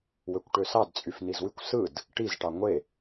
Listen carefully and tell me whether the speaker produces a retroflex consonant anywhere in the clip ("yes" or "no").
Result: yes